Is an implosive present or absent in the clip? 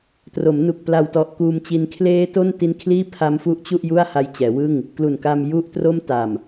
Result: absent